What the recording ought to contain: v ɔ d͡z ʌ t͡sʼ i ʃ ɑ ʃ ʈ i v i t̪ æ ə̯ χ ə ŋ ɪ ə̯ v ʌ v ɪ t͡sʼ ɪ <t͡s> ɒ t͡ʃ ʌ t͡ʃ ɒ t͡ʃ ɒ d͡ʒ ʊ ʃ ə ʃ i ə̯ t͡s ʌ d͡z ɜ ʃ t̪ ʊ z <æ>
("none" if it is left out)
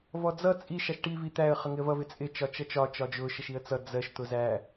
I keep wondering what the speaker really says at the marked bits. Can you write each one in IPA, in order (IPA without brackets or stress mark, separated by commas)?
t͡ʃ, æ